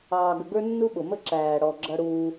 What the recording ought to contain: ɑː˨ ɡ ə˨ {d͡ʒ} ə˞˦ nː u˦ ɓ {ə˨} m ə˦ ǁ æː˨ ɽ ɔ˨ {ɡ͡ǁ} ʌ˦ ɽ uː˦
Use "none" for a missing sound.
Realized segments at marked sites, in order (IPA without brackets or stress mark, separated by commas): ɡ, ʊ˨, ɡ͡ǁ